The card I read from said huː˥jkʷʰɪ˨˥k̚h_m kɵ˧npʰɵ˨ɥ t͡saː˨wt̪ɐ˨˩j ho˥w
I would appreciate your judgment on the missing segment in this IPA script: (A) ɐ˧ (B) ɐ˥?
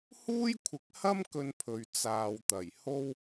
B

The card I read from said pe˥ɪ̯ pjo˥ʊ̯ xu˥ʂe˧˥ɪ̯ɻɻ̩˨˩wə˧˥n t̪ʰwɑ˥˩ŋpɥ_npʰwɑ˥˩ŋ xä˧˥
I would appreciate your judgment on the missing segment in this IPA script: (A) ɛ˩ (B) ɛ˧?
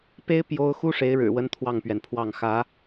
A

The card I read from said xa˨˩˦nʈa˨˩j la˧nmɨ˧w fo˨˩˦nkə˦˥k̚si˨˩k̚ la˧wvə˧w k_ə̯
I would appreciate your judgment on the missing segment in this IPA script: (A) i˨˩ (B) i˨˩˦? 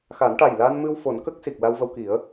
B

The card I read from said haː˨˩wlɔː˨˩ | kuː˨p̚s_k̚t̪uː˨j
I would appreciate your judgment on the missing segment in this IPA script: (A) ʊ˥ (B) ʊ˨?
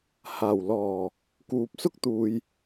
A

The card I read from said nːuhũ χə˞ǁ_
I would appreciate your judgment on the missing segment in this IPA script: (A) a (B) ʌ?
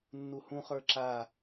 A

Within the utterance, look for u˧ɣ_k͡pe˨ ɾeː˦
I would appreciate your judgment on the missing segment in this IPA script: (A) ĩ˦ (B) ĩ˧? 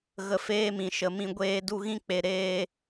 A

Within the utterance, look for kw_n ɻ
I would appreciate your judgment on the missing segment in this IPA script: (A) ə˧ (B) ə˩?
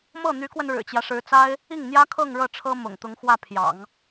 A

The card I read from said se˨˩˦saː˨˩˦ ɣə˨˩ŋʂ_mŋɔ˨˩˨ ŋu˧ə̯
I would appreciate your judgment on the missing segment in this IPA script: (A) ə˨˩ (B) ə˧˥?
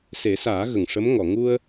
B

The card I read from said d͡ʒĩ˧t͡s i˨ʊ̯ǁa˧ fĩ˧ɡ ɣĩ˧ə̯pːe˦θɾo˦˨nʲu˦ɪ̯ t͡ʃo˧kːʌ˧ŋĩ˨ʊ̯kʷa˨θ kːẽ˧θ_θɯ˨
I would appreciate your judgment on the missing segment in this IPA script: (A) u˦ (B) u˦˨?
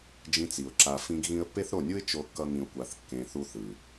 A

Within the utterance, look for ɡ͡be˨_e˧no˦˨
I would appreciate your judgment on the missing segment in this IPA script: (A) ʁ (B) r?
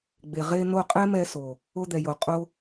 A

